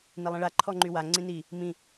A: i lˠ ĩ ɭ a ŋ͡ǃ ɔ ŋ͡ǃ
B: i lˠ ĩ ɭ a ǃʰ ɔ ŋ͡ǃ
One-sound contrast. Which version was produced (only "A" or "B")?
B